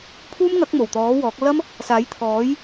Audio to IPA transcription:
pʰ uː˥ m ŋ ɐ˨˥ k̚ m o˨˩ w t̪ ɔː˨˥ w ɔː˨˥ k̚ l ɐ˥ m | s aː˨˥ j t̪ʰ ɔː˨˥ j

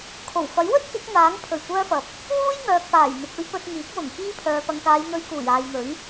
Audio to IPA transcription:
kʰ o˨˩ w f ɐ˨˥ j w ɵ˥ t̚ k ɪ˨˥ k̚ n̪ aː˨˥ ŋ pʰ ɵ˨˩ ɥ kʷ œː˧ f ɐ˨ p̚ | w uː˥ j ŋ œː˨ k̚ p aː˨˩ j n̪ ɪ˨ k̚ ɵ˧ ɥ p ɵ˧ t̚ ŋ iː˨˥ k̚ w ʊ˨˩ ŋ k iː˧ pʰ œː˨ p ɐ˨ ŋ k aː˨˧ j n̪ ɵ˨˧ ɥ k uː˨˩ j aː˨ j n̪ ɵ˨˥ ɥ

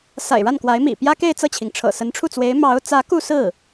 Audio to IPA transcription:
s a̰˨˩ ɪ̯ ɻ a˥˩ n k w a˧˥ ɪ̯ m ḭ˨˩ p j ä˥ k e˥˧ ɪ̯ t͡s ɤ˥˩ t͡ɕʰ i˩ ŋ ʈ͡ʂʰ ɤ̰˨˩ s ə˧˥ n ʈ͡ʂʰ u˥˩ t͡s w e˧˥ ɪ̯ m ɑ˧˥ ʊ̯ t͡s ä˧˥ k u˥˧ s ɹ̩˥˩

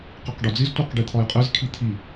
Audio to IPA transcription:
q i q ɖ ɒ d͡z i z tʷ æ q ɖ i t̪ʰ ɒ j qʼ e z kʰ i t̪ʰ i

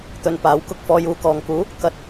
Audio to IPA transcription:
t̪ ɵ˨ n p aː˨˥ w k ʊ˧ k̚ f ɔː˧ j uː˧ k ɔː˨ ŋ k uː˨˥ | k ɐ˨˥ t̚

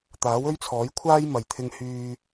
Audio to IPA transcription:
t̪ aː˨˥ w ɵ˥ ɥ t͡sʰ ɔː˨˥ j kʷʰ aː˥ j m ɐ˨ j t̪ʰ ɪ˧ ŋ h yː˧

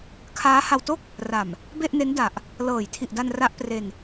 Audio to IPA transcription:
kʰ aː˦˥ h a˧ w t o˥˩ k̚ | r a˨˩ m | b e˥˩ ʔ n e˦˥ n d a˨˩ ʔ | l ɤː˨˩ j tʰ i˨˩ ʔ d a˧ n r a˦˥ ʔ p r e˧ n

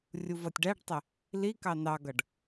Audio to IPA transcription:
rʲ u v ʌ tʲ ɖ æ ɖ tˤ ɪ | l i k ɑ n ɑ ɡ ʌ ɖ

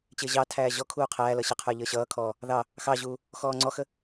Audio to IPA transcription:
t͡ɕ ɪː ʑ ɑ tʰ æː ʑ ɔ kʰ uː qʰ æː l ʌ ɕ ə qʰ ə˞ ʎ əː ɕ ʌː kʰ ɔː | ð ɑ | x ɑ ʑ uː | x ɔː ŋ͡ǀ ɔ x ə

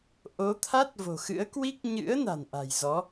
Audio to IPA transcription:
ʔ o˨˦ t̪ʰ a˦˥ t̚ v o̤˨˩ x ɨ̰˧˥ ə̯ k w i˦˥ k̚ ɲ ɨ̰˧˥ ə̯ n a̤˨˩ n ʔ a̤˨˩ j z ɔ˨˦

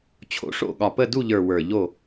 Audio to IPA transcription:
t͡ɕʰ o̰˨˥ ʂ o̰˦˨ ɠ ɒ˨˩ p ə˦˨ d u˦˨ ʎ ə˞˨˩ w ə˞˨˩ ʎ o˦˨

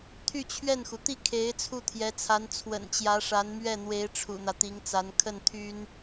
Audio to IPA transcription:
t̪ʰ y˥˧ t͡ɕʰ ɥ ɛ˥˩ n x u˩ t̪ i˥˩ kʰ e˧˥ ɪ̯ t͡sʰ u˥˩ t̪ʰ j ɛ˧˥ t͡sʰ a˧˥ n t͡sʰ w ə̰˨˩ n t͡ɕ j ä˧˥ ʂ a˧˥ n m ɥ ɛ˥˩ n̪ w e˧˥ ɪ̯ ʈ͡ʂʰ ṵ˨˩ n̪ ä˦ t̪ i˧˥ ŋ t͡s a˧˥ n kʰ ə˥˩ n t̪ʰ y˥ n

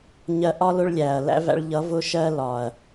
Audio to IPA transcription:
ɲ ɜ˧ ʔ ɒ˦ l ʊ˦ ɭ lʲ æ˨ ɐ̯ l æ̰˦ v æ̰˧ ɭ ʎ ʌ˨˦ v ʊ˦ ʃ ɜ˦ l ɒ˨ ɐ̯

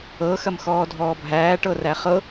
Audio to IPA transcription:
ɤ x ɐ m x ɔː dʱ ɔː bʱ æː ʈ ɤ r æ χ ɤ

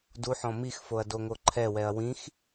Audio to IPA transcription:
d u ħ ɔ̃ m i x f o ɐ̯ d o ŋ o ǃʰ ɛ w ɛ ɐ̯ w ĩ x

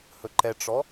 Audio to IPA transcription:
h ɵ ǃ ɛ ʈ͡ʂ ɔ

